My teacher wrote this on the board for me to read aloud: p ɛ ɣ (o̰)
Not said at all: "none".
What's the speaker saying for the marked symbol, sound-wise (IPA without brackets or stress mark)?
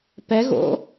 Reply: o̰